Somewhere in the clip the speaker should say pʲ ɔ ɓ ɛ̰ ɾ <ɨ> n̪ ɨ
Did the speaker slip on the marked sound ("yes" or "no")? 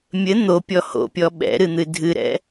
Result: no